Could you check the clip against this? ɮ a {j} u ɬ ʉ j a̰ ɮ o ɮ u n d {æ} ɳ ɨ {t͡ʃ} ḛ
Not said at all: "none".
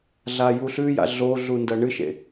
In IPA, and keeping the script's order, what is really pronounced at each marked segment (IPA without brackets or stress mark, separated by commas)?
j, ɐ, ʃ